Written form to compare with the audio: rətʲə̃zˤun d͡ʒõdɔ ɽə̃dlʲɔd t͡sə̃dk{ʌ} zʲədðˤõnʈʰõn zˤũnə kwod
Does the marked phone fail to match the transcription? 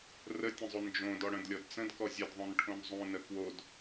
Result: yes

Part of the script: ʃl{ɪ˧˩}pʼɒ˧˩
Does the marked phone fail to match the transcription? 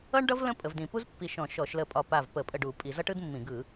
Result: yes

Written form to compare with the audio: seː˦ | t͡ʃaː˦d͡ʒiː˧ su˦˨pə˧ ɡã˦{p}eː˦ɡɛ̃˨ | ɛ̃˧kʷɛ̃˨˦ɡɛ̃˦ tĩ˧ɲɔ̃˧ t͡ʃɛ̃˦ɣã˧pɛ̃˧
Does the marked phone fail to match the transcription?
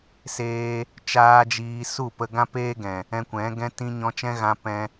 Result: no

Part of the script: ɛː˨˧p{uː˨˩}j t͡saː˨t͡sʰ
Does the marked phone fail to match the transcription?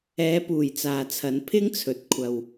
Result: no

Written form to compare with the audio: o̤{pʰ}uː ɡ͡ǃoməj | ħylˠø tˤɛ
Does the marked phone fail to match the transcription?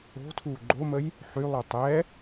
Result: yes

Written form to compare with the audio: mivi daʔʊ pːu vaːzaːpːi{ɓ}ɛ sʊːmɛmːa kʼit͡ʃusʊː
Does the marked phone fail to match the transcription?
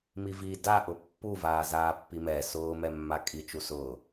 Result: yes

